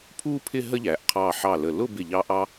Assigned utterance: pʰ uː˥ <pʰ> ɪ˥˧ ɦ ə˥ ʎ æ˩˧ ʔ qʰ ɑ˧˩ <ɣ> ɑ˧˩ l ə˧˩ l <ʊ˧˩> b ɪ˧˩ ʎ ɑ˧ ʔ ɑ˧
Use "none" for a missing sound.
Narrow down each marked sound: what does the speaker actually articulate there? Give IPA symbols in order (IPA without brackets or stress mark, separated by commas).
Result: pʰ, ħ, ʊ˥˧